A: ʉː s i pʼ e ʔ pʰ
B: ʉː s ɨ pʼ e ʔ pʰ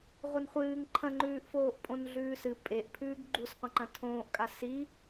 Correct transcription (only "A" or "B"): B